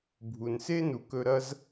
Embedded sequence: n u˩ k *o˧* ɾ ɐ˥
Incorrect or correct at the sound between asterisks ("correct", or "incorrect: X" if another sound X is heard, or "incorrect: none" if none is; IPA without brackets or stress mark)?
incorrect: ɵ˧